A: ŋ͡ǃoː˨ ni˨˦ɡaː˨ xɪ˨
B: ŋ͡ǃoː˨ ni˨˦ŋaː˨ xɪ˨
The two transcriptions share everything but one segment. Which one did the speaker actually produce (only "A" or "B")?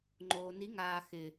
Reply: B